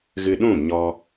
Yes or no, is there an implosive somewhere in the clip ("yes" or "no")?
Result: yes